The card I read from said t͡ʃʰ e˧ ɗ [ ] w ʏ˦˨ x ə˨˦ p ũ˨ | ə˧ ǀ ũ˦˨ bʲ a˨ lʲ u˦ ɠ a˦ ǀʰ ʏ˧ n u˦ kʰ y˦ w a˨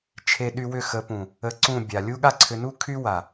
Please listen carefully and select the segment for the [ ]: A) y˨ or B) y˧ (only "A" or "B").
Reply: B